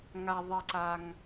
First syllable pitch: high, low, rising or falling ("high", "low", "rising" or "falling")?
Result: low